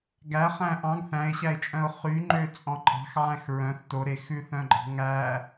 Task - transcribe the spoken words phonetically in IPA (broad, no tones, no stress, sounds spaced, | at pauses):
ɡ æ χ æ̃ ʔ ɑ̃ ɡ θ æ̃ ɪ̯ ɕ æ ɪ̯ t͡ʃʼ œ̃ ʊ̯ χ y ŋ͡ǃ ø t͡sʼ ɔ̃ ǃʼ ɑ̤ x ʕ æ̃ x ɹ œ̃ θ t o ɾ e x ʉ θ œ̃ ɡ͡ǃ ɑ̤ ŋ æ